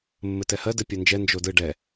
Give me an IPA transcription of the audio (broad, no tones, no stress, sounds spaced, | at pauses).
mː ɘ t ɛ h ɜ d ɘ pʲ ɜ n d͡ʒ ɛ n d͡ʒ o d ɯ ɖ ɛ